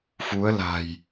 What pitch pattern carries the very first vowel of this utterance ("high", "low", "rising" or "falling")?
rising